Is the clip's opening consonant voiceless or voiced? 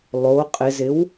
voiced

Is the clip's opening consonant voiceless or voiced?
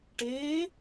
voiceless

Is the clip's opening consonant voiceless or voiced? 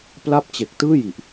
voiceless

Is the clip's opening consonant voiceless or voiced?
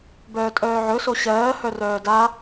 voiced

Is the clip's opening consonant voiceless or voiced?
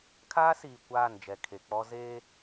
voiceless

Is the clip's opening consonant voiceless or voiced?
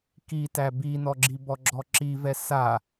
voiceless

